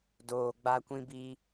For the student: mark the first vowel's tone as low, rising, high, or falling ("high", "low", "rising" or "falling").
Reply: low